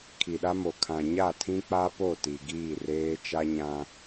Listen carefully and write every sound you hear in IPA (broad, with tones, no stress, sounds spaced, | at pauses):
kʰ i˨ ɗ a˦ m o˨ kʰ ã˨ ɲ a˦˨ tʰ ĩ˦ k͡p a˦ p o˦˨ t i˨ ɡ iː˦˨ r eː˦ t͡ʃ a˦ ɲ ã˦